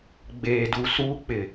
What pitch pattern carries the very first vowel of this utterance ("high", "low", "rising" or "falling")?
low